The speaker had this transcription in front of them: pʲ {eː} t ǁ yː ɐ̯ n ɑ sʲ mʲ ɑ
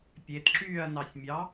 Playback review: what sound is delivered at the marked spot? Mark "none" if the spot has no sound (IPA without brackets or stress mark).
e